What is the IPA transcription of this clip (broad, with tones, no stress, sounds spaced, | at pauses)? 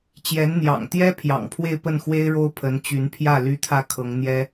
t͡ɕ j ɛ˧˥ n n̪ j ɑ̰˨˩ ŋ t̪ j ɛ˥ pʰ j ɑ̰˨˩ ŋ pʰ w e˥˧ ɪ̯ p ə˥˩ n x w e˥ ɪ̯ ɻ o˥ ʊ̯ pʰ ə˧˥ n t͡ɕ y˧˥ n pʰ j ä˥˩ l y˥ t̪ʰ ä˥˩ kʰ ɤ˧˥ ŋ n̪ j ɛ˥